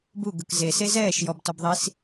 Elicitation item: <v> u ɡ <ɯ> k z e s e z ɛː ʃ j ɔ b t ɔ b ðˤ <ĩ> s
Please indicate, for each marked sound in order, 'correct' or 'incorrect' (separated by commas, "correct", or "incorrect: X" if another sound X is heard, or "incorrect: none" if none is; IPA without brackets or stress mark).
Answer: incorrect: b, correct, incorrect: i